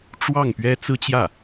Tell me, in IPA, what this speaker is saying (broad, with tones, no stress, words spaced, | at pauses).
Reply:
ʈ͡ʂwɑ˥˩ŋpɥɛ˥ t͡sɹ̩˥t͡ɕjä˥˩